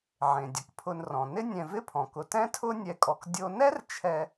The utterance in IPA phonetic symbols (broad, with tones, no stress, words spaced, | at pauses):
ʕẽ˩dʲʊ˩kpʰʊ˨nrɔ̃˩ nɪ˥nʲɛ̃˨vɪ˥pʰɔ̃˩ kʊ˨tɛ̃˥tʰʊ˥ nʲɛ˦kʼɔ˨k dʲo˦ nɛ˥rt͡ʃʰɛ˨